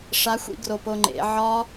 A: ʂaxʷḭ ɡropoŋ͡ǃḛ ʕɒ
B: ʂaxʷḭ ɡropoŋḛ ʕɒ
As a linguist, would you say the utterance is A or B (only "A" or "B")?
A